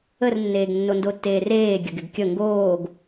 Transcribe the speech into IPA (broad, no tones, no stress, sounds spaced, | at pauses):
ə r nː eː ɡ nː o n d o tː eː r eː ɡʲ ə ɡ ɪ ɡ kʲ ə ŋ ɡ oː ɡ